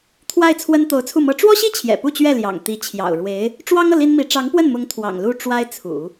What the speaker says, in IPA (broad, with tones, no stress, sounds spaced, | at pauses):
t̪ʰ w a˥˩ ɪ̯ t͡sʰ w ə˥ n t̪ o˧˥ ʊ̯ t͡sʰ u˥˩ m ɤ˥ ʈ͡ʂ w ɔ˥ ɕ i˥ t͡ɕʰ j ɛ̰˨˩ p u˥˧ t͡ɕ ɥ ɛ˥˩ l j ɑ̰˨˩ ŋ t̪ i˧˥ t͡ɕʰ j ɑ̰˨˩ ʊ̯ ɻ w e˧˥ ɪ̯ | ʈ͡ʂ w ɑ˥ ŋ ɤ˨ l i˥ n m i˧˥ ʈ͡ʂ ɑ˧˥ ŋ p w ə˥˩ n m ʊ˧˥ ŋ t̪ʰ w ɑ̰˨˩ ŋ l u˥˩ ʈ͡ʂ w a˥ ɪ̯ t͡sʰ ṵ˨˩˦